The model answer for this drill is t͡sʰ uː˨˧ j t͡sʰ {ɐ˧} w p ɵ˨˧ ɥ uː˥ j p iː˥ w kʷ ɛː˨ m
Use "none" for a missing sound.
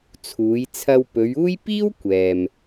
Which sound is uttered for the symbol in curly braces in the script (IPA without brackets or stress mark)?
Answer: ɐ˧